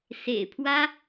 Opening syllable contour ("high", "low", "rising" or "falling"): low